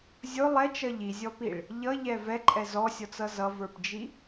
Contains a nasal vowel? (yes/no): no